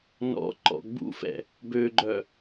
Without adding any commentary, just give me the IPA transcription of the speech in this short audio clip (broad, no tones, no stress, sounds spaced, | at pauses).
n ɔ̰ ǃ ɔ̰ ɡ͡b ṵ f ɛ̰ | b ø ɡ͡ǃ œ